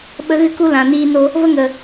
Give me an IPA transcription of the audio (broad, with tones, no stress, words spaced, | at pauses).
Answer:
ɓə˦ɣɨ˦ku˦lã˨ niː˧no˧ | və˦ŋə˨